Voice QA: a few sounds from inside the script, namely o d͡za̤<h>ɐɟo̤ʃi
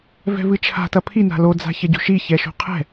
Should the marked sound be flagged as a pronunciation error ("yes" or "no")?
yes